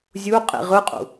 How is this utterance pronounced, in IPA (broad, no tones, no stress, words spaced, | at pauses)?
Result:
zʲuqʼḭ ʁɯqʼṵ